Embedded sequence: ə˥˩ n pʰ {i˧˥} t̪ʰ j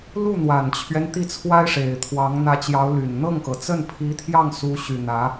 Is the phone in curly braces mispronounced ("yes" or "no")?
no